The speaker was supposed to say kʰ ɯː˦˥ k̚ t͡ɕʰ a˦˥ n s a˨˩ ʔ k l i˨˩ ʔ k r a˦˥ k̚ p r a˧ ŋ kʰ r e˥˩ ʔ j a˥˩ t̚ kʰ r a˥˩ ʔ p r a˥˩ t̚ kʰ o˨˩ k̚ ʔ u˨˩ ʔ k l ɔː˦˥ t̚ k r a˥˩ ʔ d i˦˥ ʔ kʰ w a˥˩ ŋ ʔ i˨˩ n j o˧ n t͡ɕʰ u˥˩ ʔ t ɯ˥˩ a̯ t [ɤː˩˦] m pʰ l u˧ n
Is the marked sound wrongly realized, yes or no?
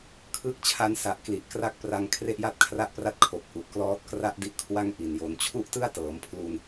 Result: no